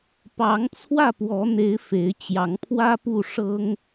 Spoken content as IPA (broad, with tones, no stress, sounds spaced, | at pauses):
p ɑ˨˦ ŋ t͡sʰ w ä˥˨ p w ɔ˨˦ n̪ e˨˦ ɪ̯ f e˨˦ ɪ̯ t͡ɕ j ɑ˨˦ ŋ pʰ w ä˦ p u˥˨ ʂ ɤ˦ ŋ